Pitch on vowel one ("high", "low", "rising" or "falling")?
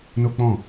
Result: high